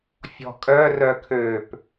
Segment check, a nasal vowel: absent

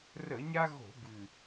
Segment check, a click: absent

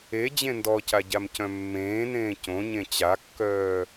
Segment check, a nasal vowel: present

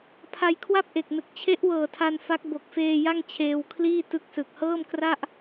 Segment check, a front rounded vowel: absent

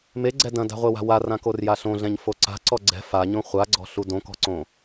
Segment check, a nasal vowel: present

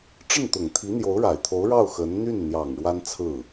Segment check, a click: absent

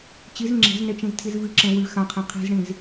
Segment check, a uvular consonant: present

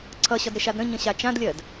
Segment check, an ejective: absent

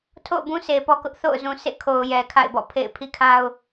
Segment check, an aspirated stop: present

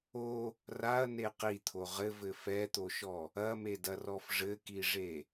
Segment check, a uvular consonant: present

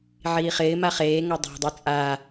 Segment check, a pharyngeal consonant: present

